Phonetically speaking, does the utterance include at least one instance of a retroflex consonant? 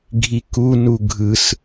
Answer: no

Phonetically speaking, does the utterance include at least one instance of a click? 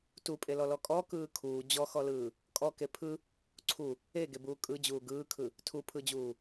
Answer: yes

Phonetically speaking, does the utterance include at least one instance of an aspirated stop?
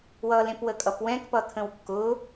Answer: yes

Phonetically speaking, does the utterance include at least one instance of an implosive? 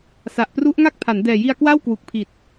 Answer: no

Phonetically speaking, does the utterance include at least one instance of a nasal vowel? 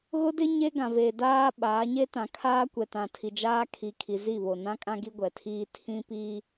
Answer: yes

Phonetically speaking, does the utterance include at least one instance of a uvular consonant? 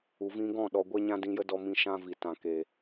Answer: no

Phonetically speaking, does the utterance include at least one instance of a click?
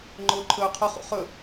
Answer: yes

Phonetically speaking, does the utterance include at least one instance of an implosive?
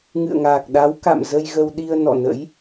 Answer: yes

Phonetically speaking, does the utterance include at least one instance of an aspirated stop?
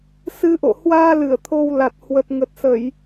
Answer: yes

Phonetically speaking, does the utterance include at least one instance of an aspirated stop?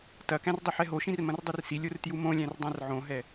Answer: no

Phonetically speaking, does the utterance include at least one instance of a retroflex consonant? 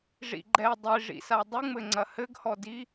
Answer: yes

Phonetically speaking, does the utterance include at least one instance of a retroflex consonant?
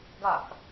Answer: no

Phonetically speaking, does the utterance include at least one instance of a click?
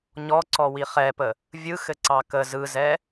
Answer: yes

